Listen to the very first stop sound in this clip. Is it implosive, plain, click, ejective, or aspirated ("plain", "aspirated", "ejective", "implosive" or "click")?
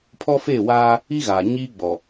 aspirated